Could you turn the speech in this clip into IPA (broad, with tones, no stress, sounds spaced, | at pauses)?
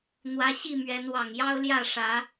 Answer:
n̪ w ä˦ ɕ i˥˨ m ɥ ɛ˨˦ n w ɑ˨˩ ŋ j ɑ˦ ʊ̯ l j ä˥˨ ʂ ä˨˦